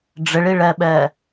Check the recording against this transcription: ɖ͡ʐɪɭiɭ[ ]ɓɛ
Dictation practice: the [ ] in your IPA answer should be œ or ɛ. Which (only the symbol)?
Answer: ɛ